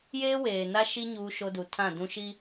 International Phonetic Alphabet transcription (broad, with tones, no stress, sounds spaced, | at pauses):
j eː˦ w eː˨ n a˦ ʃ i˦ ɲ uː˦ ʃ o˦ d u˨ tʰ ã˦˨ d ũ˦ ʃ i˦